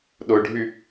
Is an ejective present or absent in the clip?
absent